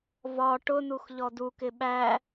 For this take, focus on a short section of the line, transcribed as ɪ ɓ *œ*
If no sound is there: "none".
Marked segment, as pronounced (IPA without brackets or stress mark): æ